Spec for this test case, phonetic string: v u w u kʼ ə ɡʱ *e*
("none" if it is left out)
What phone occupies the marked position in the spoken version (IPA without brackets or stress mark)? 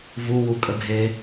e